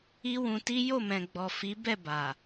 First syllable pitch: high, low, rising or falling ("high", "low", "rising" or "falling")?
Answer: high